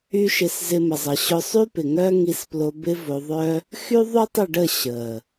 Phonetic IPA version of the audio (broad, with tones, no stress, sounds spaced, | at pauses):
y˦ ʃ ɪ˧ s z ɪ˧ m ə˨ zˤ ə˨ ɕ ʊ˧ sˤ y˦ p ɪ˨ ŋ œ˦ ŋ i˧ s p l o˧ b ɪ˦ v o˧ ðˤ œ˦ | x y˦ ðˤ y˦ tˤ ɪ˦˨ ɖ ə˦˨ ɕ ə˨